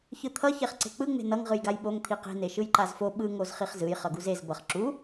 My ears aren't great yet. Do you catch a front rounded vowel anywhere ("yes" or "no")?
no